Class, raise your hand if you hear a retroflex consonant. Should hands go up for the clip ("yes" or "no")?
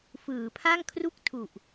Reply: no